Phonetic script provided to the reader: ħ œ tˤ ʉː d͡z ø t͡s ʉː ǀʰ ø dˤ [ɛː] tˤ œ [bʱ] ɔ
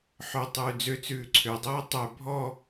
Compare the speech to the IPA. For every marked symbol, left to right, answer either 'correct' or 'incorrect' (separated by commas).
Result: correct, correct